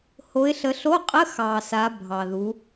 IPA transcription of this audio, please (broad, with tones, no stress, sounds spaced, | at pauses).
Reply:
h o˨˦ ɪ̯ ɬ ə˨˦ ɬ o˧˥˧ qʼ ə˧˥˧ x ɑ˨ s a˨˦ bʱ ɑ˨ ð u˨˦